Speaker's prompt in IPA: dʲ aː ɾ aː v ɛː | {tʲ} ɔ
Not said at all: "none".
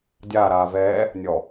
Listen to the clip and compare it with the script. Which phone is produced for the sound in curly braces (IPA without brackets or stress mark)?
nʲ